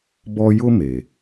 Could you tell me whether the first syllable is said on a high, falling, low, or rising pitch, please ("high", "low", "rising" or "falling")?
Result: high